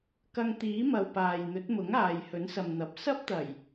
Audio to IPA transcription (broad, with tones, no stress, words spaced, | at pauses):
kɐ˧ŋt̪iː˨˥mɐ˨w paː˨j n̪ɵ˨˥t̚mʊ˨˥ŋ aː˨jhɵ˨˥nsɐ˨mn̪ɐ˨p̚ sɐ˥p̚t̪ɐ˨˩j